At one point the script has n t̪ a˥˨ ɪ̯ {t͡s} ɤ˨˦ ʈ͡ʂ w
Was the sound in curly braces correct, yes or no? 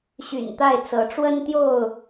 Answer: yes